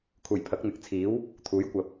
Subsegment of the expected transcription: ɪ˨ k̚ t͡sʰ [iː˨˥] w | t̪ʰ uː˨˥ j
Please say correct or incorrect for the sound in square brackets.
correct